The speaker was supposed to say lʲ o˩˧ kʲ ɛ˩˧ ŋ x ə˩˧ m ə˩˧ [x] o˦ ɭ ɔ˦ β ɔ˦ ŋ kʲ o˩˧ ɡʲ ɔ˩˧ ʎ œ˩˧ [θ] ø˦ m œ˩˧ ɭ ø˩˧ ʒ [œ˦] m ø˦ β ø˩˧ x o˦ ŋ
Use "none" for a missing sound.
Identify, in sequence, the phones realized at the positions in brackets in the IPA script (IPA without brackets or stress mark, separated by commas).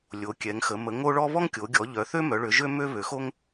ŋ, θ, ø˦